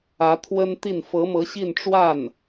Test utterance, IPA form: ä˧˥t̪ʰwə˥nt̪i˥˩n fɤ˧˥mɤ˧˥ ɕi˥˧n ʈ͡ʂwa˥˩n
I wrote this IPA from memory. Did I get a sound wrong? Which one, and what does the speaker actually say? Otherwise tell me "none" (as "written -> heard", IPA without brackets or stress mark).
none